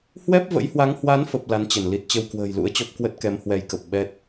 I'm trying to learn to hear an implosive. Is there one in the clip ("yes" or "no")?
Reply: yes